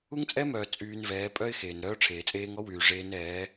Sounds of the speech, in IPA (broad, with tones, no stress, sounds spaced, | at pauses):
u˦ ŋ t͡sʼ ɛ˦ m œː˨ t͡sʼ yː˧ n v ɛː˨˦ pʼ œ˦ ɪ̯ x eː˨ n ɾ œː˦ ʈ͡ʂʰ eː˨ t͡sʼ eː˦ ŋ ɔ˦ w yː˨ ʐ eː˦ n ɛː˨˦